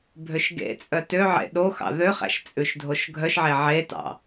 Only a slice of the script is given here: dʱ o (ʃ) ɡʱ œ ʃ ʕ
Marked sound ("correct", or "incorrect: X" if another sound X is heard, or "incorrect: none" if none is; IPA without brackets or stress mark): correct